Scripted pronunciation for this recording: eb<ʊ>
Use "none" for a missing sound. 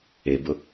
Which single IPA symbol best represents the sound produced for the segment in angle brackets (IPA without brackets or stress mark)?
ʊ